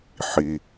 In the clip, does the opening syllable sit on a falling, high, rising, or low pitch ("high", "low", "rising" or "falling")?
low